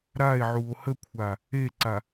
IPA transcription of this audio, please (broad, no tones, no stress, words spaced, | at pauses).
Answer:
ɾae̯ʕuo̯ həkʷʰa | eǀa